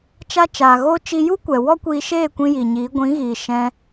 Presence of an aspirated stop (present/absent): absent